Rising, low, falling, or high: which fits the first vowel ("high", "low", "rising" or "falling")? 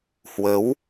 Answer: rising